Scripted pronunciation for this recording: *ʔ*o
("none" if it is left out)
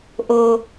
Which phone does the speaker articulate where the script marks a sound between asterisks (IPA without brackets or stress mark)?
ʔ